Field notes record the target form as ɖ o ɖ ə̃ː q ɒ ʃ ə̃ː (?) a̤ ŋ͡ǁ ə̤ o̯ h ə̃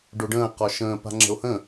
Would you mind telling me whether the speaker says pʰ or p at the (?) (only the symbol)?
p